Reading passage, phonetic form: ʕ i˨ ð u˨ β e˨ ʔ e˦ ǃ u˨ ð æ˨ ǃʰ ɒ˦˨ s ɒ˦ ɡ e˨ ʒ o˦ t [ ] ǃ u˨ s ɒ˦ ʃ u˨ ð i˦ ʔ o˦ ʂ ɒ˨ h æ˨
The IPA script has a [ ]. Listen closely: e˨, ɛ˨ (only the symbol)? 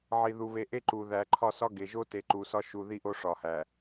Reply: e˨